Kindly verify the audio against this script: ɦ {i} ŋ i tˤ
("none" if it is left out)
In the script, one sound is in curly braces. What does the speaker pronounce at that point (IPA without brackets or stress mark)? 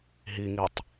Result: i